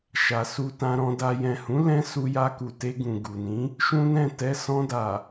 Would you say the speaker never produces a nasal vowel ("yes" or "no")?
no